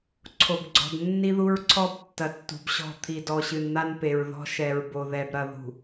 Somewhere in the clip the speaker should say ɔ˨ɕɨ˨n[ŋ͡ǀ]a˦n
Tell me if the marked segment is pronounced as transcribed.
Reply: no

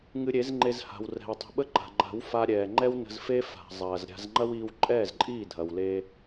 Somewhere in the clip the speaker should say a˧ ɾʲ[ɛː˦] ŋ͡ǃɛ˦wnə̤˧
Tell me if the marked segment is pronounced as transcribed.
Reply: no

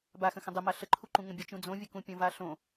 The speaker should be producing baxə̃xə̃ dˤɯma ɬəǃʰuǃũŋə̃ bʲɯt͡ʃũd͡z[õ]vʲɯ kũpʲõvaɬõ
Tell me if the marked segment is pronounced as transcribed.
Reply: yes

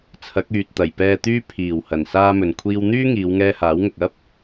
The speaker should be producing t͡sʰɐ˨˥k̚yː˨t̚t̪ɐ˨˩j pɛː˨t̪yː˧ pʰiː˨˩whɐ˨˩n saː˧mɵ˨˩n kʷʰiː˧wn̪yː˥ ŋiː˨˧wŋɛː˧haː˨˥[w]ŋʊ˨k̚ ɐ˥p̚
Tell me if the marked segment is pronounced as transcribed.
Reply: yes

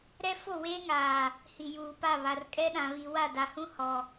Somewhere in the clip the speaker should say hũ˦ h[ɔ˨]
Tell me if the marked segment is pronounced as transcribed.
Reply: yes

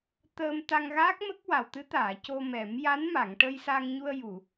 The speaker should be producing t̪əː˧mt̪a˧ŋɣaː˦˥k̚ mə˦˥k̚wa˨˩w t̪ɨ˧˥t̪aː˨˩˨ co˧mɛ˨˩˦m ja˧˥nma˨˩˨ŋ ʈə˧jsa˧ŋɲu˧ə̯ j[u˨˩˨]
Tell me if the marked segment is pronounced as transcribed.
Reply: yes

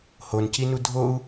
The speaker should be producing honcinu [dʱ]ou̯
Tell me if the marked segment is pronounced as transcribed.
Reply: yes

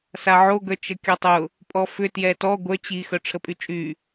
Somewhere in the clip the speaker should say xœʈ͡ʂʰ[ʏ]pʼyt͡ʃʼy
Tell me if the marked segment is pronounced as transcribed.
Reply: no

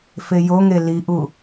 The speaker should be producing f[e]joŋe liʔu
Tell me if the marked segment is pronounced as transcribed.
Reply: yes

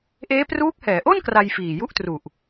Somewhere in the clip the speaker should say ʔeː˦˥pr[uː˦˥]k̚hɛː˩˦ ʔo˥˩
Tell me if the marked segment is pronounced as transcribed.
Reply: yes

